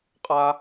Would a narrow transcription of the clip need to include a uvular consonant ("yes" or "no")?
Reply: yes